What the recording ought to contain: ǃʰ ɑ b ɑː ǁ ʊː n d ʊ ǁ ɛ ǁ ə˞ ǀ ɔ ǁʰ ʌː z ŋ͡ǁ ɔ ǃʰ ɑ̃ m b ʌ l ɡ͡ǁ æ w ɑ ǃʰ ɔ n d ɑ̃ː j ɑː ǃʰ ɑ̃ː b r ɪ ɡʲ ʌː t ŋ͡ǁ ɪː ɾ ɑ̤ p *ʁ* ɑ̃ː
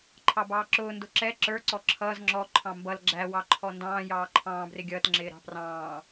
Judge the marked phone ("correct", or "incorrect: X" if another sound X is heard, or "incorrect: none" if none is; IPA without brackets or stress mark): incorrect: r